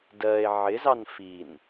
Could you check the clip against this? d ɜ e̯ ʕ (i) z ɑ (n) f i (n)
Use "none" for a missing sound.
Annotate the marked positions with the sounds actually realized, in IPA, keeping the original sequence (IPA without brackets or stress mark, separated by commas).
ɪ, n, n